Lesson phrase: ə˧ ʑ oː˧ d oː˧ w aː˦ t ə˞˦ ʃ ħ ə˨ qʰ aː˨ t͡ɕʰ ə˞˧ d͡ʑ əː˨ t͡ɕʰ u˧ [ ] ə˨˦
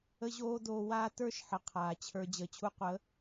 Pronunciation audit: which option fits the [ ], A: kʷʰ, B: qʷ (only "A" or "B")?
B